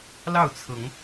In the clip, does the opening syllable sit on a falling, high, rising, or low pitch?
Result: falling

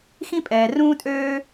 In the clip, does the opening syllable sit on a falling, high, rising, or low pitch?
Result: high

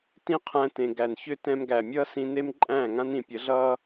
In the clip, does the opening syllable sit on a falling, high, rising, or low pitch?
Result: falling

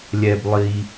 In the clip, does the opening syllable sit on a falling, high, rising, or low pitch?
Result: low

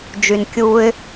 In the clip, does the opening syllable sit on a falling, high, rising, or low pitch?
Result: low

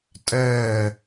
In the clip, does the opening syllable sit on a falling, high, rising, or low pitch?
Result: falling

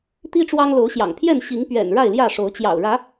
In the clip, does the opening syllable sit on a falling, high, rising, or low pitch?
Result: high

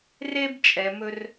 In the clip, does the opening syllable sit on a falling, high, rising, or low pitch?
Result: high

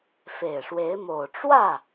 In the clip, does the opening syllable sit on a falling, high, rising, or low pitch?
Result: low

